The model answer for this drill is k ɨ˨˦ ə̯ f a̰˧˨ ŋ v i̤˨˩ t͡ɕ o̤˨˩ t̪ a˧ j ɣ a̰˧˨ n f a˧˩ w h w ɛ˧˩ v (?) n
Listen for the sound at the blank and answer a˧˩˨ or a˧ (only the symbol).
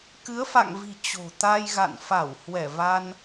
a˧